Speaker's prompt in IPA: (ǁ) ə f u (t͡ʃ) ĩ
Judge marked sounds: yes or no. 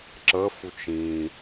yes, yes

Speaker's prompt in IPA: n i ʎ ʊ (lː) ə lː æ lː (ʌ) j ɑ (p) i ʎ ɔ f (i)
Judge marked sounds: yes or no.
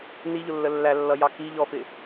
yes, yes, no, no

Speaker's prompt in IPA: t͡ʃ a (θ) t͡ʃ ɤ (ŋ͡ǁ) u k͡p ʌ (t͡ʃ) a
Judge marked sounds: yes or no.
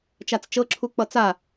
no, no, no

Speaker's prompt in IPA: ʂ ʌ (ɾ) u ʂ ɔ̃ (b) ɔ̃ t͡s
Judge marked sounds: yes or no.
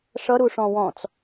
yes, no

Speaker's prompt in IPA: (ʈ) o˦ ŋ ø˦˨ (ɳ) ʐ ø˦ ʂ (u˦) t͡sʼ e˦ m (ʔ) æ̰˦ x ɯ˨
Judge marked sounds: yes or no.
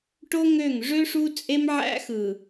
yes, no, yes, no

